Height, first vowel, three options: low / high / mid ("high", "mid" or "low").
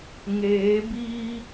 mid